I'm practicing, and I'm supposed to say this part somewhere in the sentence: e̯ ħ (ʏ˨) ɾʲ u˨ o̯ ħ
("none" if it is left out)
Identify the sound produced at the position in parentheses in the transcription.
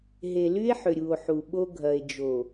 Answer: ʏ˨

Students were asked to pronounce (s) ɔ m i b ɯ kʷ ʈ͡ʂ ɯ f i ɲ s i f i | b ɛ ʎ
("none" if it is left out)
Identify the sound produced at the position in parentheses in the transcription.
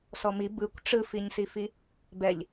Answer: s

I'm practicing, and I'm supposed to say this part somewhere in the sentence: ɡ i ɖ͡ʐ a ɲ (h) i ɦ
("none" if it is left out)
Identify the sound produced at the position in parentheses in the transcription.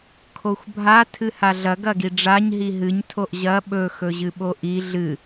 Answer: ɦ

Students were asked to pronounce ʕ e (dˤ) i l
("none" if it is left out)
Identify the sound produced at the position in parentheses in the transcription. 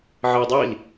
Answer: dˤ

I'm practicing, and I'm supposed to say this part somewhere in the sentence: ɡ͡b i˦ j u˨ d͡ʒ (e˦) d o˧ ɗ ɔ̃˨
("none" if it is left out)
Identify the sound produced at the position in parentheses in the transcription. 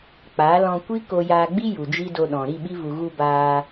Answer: i˦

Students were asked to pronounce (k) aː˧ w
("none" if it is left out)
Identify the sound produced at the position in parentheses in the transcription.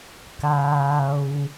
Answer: k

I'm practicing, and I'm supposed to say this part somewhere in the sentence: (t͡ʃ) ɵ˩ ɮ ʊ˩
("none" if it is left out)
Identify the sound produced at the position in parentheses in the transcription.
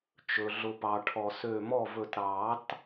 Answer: t͡ʃ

